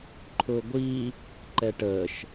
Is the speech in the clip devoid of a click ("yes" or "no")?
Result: no